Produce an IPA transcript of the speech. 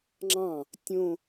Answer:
ŋ͡ǁ ɑ̃ | tʲ õ

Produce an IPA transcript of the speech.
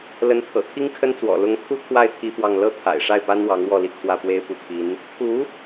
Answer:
l ə˧˥ n t̪ʰ ɤ̰˨˩ t̪ʰ i˥ ŋ kʰ ə˥ n t͡s w ɔ̰˨˩ l ʊ˧˥ ŋ t̪ʰ u˥ t̪ʰ w a˥˩ ɪ̯ t̪ʰ i˥ f w ɑ˥˧ ŋ l ɤ˥˩ t̪ʰ a̰˨˩ ɪ̯ ʂ a˥˩ ɪ̯ p a˥ n w ɑ˧˥ ŋ w ɔ˥˧ l i˥˧ kʰ w ä˥˩ p w e˥ ɪ̯ p u˧˥ t̪ʰ i˧˥ n | t̪ʰ u˧˥

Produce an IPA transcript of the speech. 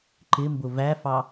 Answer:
ǃ ɪ m b ʊ v æ f ɑ

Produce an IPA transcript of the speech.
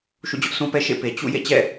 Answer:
ʃ ṵ˦˨ d͡ʑ ʊ˦ ʔ s ũ˦ p ɛ˦ ʃ ḛ˦˨ p e˨ t͡ɕ ṵ˦˨ j ḛ˦˨ t͡ɕ ɛ̰˦˨

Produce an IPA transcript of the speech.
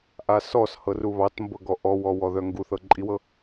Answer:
ʔ a s ɔ s h ɤ r u β ɑ t m b ɤ ɡ ɔ ʔ ɔ w ɔ w ɔ ð œ ŋ ɡ u θ ɤ ǃʼ i w ɤ

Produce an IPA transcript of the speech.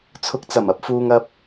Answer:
t͡sʰ ʊ˧ k̚ t͡s ɐ˨˩ m ɐ˥ p̚ f uː˧ ŋ ɐ˧ p̚

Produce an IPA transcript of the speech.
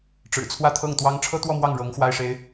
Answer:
ʈ͡ʂ ɻ̩˨˩ t͡sʰ w ä˥˧ t̪ʰ ɤ˥˩ ŋ t̪ w ɑ˥ ŋ ʈ͡ʂʰ ɤ˥ t̪ w ɔ˥˧ m w ɑ˥˩ ŋ ɻ ɤ˧˥ ŋ x w a˥ ɪ̯ ʂ e˥ ɪ̯

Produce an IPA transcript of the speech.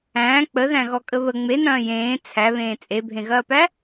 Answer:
æ̃ː k͡p ə ð æ̃ ɣ ɔ kʼ ə β ə ŋ͡m e n ɐ̃ː j ẽː t͡sʰ æ β ẽː t͡sʼ e bʱ ẽ ɣ ɐː p æ

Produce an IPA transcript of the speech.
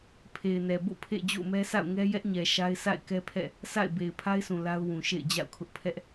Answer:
pʰ e˨ ɪ̯ n ɛ˨ b o̰˦˨ pʰ ḛ˦˨ d͡ʑ o̰˦˨ ʊ̯ m ɛ˦ sʰ a̰˦˨ ʊ̯ ŋ ɛ˦ j ɛ˦ ʔ ɲ ɛ˨ ʃ a˦ ɪ̯ s a̰˦˨ ɪ̯ k ɛ˦ pʰ ɛ̰˦˨ | s a̰˦˨ ɪ̯ b e˨ ɪ̯ pʰ a˦ ɪ̯ s ũ˨ l a˦ ʊ̯ w ũ˨ ʃ ḛ˦˨ ɪ̯ d͡ʑ a̰˦˨ ʊ̯ kʰ ʊ˦ ʔ pʰ ɛ˦ ʔ

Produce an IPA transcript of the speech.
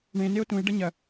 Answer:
ɳ ẽ n e o̯ t ũ e̯ ɖ ɐ ɲ ɐ

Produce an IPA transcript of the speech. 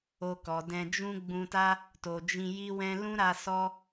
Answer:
o˧ k ɔ˨ d ɛ̃˧ d͡ʒ ũ˦ ɡ͡b ũ˧ t a˦ | t o˨ d͡ʒ ĩ˧ j i˦ w ɛ̃˦ l ũ˦ ɾ a˧ s ɔ˦

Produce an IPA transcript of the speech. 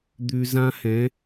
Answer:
d̪ ʉ˧ z ã˦ h ɛ̃˨˦

